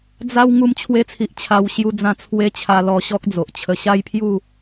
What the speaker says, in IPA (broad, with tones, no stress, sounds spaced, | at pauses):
d͡z a˦ w ŋ u˧ m t͡ɕʰ w e˧ t͡sʰ i˨ ʔ t͡ɕʰ a˧ w ɕ j u˧ d͡z ã˧ t͡sʰ w e˦ t͡ɕʰ a˧ l ɔ˧ ɕ ɔ˦ k̚ d͡z o˨ ʔ t͡ɕʰ ə˧ ɕ a˦ j pʰ j u˥˧